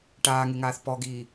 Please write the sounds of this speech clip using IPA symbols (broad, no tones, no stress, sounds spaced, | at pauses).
ʈ aː ŋ e ŋ aː θ p ɔ ɡ iː